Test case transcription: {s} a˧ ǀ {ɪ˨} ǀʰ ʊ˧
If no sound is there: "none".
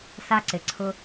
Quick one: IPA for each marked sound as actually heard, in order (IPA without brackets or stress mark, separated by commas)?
s, ɪ˨